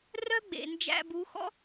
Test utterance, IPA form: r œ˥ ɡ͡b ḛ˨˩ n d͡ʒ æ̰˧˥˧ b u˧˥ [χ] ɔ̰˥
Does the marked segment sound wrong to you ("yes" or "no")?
yes